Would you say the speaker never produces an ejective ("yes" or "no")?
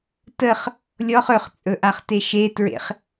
no